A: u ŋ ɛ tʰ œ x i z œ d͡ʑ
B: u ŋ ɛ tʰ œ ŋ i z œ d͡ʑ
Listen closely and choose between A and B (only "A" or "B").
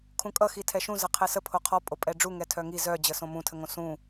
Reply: B